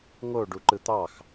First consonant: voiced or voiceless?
voiced